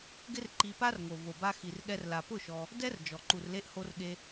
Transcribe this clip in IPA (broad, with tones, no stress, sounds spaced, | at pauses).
ɡ ɪ˦ r ǃ i˧ p a˦ r ŋ o˨ v o˨ b a˧ x i˨ r ɠ ɛ˧ r l a˨ p ʊ˦˨ ʃ ɔ˧ | d ɛ˦ r d͡ʒ ɔ˨ ǃ u˨ r l e˧ ʔ h o˧ r ɠ e˧